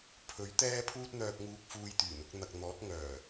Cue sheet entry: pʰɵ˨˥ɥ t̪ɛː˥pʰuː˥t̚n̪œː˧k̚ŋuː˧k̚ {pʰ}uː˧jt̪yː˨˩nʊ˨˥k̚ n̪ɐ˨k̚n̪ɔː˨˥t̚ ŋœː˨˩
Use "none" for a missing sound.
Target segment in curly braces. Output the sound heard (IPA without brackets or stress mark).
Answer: f